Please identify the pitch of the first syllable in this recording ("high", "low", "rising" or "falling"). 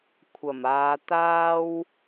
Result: low